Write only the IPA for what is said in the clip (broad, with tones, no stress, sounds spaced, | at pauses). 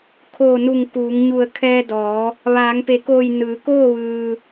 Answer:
kʰ oː˧˩ n u˧˩ ŋ k uː˩˧ ŋ ɲ u˧˩ ə̯ kʰ ɛː˧ d ɔː˩˧ | ʋ aː˩˧ ŋ p e˩˧ k oː˧˩ j n ɯː˩˧ k oː˥˨ ʋ ɯː˩